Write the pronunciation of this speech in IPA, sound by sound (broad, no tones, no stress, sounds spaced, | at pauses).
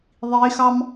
ðˤ i x ɑ m